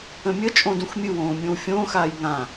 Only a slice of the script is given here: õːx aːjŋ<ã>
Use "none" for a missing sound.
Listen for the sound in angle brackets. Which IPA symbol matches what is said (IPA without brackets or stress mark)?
ã